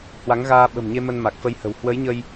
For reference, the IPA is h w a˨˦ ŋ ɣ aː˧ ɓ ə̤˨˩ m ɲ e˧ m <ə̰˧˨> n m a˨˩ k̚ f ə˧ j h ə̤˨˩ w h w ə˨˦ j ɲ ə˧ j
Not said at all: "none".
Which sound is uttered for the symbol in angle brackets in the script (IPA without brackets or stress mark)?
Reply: ə˧